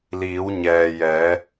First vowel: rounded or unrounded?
unrounded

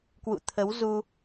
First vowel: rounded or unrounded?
rounded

